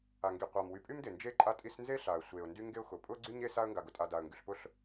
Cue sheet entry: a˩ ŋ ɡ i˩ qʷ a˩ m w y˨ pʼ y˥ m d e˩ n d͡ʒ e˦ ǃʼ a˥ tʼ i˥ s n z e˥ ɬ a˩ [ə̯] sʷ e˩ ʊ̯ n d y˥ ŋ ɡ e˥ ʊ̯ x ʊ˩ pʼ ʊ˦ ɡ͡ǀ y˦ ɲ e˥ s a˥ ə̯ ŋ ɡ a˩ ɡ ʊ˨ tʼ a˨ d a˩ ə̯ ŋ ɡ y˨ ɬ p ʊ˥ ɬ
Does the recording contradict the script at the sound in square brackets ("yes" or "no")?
no